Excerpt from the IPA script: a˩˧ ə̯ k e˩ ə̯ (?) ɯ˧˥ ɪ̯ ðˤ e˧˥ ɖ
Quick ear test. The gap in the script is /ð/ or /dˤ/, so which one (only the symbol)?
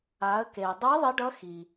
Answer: dˤ